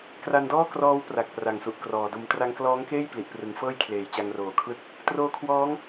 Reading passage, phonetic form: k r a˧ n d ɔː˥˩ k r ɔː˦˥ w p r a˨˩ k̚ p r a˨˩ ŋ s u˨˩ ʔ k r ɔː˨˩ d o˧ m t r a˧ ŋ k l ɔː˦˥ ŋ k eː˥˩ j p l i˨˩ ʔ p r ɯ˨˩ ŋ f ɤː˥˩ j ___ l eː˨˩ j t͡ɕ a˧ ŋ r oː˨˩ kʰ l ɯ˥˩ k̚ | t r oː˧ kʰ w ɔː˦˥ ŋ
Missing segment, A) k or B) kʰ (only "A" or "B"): B